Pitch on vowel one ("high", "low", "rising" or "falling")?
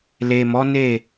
low